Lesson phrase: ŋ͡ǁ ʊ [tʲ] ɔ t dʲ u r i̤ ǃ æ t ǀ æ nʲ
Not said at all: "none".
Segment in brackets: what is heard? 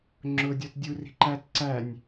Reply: dʲ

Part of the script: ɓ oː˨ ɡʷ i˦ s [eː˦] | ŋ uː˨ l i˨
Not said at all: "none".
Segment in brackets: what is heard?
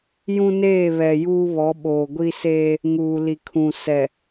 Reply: eː˦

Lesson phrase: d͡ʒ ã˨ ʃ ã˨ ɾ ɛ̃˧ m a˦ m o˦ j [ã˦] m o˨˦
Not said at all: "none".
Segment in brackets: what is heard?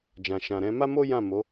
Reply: ã˦˨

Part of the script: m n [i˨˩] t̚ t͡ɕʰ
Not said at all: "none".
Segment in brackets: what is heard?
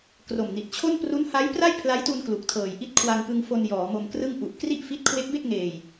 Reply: i˨˩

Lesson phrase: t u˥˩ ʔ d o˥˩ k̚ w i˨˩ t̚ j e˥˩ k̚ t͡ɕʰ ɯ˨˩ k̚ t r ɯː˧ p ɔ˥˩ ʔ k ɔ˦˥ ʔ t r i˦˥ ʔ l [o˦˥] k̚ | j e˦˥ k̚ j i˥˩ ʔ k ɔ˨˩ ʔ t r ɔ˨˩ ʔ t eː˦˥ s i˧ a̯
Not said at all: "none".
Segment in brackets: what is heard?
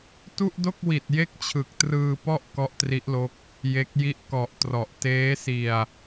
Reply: o˦˥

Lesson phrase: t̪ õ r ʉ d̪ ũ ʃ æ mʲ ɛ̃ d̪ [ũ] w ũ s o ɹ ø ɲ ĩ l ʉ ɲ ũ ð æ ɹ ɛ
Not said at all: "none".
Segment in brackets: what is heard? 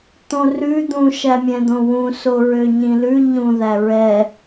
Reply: õ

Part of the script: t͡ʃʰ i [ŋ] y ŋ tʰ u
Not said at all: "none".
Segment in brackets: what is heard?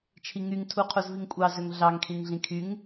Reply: ŋ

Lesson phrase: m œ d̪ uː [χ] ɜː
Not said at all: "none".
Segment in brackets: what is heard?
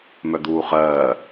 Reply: χ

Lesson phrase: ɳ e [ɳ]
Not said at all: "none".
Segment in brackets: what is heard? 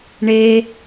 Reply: none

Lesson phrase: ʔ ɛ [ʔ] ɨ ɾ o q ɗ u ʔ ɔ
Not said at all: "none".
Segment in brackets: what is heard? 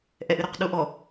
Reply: ʔ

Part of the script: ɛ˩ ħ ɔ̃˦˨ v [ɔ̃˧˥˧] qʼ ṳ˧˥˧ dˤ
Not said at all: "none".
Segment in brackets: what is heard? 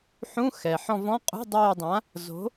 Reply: ɔ̃˧˥˧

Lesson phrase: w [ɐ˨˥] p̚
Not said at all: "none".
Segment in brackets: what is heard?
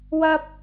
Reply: ɐ˧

